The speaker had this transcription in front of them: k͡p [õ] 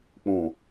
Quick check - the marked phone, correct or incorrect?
correct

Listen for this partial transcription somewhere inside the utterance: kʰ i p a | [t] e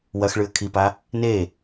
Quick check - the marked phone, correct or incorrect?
incorrect: n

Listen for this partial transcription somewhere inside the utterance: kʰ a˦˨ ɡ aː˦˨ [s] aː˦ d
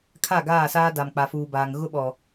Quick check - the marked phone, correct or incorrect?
correct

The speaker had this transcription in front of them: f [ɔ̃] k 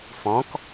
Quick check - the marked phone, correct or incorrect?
correct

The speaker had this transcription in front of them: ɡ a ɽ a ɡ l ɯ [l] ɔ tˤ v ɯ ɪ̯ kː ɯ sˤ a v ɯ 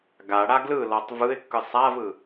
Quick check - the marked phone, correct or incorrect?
correct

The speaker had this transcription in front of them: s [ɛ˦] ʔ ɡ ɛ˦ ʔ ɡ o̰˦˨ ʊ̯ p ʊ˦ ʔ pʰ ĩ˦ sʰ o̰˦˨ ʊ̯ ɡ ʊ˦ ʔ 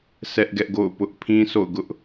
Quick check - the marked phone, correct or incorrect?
correct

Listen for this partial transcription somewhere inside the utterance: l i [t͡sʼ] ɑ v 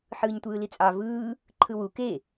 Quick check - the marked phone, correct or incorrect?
correct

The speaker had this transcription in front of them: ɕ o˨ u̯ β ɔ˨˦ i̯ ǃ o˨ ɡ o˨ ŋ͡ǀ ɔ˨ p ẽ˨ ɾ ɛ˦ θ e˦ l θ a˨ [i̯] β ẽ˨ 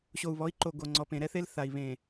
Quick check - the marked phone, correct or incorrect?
correct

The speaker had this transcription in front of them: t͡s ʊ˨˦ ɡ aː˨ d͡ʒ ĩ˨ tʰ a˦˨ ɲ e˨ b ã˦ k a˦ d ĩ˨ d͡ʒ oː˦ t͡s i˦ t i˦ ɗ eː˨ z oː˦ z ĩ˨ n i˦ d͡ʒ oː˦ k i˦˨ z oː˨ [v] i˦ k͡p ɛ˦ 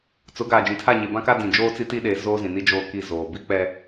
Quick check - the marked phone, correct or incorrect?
incorrect: b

